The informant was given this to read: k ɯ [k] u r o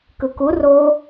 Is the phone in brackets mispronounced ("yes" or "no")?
no